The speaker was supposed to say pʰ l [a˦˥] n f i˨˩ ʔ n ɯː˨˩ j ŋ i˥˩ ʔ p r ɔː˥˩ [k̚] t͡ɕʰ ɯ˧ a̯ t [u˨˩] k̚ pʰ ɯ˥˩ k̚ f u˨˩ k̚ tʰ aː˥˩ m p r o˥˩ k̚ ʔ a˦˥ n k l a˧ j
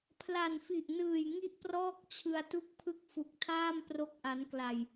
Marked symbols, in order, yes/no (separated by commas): no, yes, no